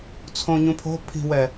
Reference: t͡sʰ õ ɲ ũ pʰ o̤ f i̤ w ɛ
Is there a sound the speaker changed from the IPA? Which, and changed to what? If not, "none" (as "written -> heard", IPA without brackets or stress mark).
f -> pʰ